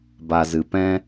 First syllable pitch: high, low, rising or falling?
low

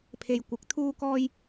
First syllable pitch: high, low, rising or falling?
low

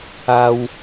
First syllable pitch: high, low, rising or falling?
high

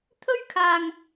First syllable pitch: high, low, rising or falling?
high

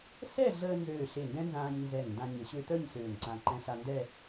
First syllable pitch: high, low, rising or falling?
falling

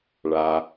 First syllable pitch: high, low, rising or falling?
low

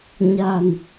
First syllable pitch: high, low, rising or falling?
low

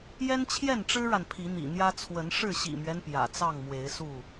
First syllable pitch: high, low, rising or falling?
high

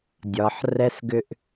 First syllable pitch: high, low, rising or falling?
low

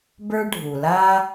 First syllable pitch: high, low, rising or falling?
high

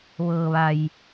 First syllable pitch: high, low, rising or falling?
low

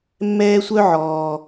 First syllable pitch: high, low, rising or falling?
high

